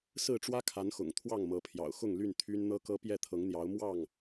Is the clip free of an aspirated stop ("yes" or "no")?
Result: no